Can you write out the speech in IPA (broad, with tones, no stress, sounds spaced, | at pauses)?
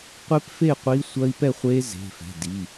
qʷ e˦˥ p f e˥˧ qʷ i˦˥ sʷ ɐ˦˥ i̯ p ɛ˥˧ χʷ e˦˥ z e̤˩˧˩ f ɛ̤˩˧˩ d i˩˧˩